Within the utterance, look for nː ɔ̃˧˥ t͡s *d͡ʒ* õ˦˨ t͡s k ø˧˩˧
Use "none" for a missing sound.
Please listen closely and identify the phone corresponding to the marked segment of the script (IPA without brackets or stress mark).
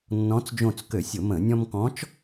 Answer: d͡ʒ